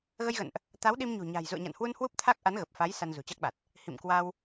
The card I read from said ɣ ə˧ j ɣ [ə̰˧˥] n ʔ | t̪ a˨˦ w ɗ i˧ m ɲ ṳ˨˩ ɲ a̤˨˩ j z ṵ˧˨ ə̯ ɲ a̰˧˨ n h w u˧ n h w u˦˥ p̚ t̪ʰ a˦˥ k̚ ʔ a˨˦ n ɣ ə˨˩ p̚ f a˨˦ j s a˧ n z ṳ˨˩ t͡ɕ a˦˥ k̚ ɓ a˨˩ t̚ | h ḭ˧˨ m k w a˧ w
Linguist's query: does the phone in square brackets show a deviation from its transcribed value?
yes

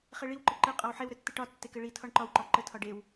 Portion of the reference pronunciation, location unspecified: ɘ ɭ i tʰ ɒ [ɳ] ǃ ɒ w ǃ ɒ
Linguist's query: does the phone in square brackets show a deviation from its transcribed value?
no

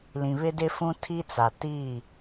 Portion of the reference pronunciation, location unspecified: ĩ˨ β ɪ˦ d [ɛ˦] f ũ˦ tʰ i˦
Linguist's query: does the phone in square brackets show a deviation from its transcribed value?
yes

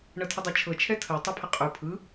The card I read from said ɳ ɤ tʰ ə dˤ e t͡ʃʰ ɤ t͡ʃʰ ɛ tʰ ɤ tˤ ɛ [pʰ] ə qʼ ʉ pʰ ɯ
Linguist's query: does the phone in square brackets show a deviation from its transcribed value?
no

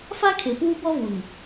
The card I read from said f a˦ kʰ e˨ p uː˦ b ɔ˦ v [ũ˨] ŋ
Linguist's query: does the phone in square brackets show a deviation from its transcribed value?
yes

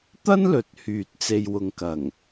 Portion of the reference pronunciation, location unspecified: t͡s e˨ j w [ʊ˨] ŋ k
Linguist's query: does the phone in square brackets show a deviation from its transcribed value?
no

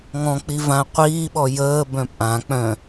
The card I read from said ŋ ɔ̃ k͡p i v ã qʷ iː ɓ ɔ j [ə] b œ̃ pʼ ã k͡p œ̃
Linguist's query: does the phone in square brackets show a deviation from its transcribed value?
yes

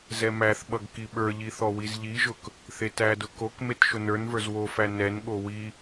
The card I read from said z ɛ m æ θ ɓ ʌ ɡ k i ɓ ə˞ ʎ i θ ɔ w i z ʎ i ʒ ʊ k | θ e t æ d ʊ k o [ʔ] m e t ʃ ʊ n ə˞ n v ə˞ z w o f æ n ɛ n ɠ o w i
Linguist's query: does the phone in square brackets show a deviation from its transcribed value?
yes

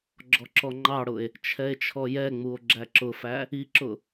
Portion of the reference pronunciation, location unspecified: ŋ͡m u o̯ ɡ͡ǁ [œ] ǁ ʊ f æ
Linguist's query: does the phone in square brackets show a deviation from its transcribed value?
yes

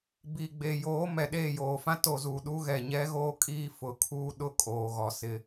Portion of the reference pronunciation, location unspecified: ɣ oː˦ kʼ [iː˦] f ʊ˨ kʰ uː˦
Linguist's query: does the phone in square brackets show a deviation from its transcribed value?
no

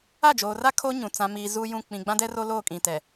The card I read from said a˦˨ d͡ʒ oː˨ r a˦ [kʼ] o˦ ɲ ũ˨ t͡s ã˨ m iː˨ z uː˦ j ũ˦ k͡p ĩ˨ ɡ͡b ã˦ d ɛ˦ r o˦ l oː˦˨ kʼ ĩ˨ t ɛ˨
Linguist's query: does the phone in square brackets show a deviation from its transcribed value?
yes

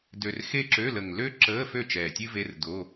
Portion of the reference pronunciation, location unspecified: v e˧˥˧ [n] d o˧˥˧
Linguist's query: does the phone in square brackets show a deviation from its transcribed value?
yes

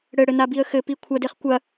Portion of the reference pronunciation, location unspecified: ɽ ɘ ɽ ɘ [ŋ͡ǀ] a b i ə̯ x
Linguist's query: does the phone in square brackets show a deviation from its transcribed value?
yes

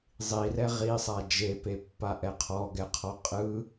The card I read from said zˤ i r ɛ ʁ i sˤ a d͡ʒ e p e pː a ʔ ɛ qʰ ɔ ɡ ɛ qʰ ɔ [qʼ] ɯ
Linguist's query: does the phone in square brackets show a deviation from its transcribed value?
no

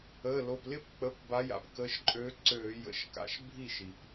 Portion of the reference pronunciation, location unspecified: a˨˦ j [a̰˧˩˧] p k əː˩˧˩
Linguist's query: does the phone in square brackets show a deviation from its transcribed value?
yes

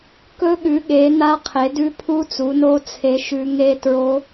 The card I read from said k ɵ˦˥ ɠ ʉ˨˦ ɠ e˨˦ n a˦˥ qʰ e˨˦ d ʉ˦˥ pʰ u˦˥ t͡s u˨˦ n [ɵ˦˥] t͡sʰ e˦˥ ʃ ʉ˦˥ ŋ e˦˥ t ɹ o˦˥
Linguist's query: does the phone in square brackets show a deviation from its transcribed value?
yes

